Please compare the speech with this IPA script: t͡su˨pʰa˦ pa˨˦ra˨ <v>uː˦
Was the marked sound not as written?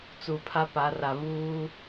no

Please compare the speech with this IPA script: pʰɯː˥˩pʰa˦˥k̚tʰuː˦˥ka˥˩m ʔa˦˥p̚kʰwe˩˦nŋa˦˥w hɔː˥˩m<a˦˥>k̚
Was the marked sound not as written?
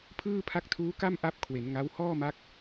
no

